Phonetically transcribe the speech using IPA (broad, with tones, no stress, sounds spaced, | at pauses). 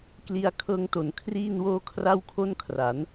k l i˧ a̯ kʰ ɤː˧ ŋ t o˨˩ n kʰ r iː˥˩ n w oː˥˩ kʰ r a˥˩ w kʰ o˥˩ n kʰ r a˩˦ n